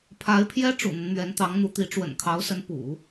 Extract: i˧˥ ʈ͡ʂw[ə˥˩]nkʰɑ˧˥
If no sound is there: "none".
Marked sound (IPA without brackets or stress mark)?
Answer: ə̰˨˩